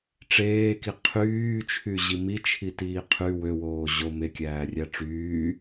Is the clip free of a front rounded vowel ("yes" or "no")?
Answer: no